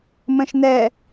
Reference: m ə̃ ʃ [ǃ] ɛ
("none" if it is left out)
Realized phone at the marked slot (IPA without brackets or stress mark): n